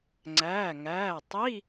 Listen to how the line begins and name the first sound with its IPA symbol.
ŋ͡ǀ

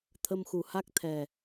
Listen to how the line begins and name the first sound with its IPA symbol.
t̪ʰ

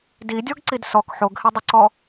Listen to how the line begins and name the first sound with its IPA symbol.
d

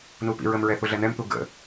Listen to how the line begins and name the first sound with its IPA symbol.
n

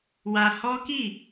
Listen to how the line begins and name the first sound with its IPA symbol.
w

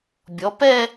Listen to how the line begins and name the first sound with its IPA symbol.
bʲ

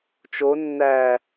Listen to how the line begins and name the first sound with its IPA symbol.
t͡ʃ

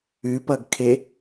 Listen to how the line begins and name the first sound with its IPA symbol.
ʉ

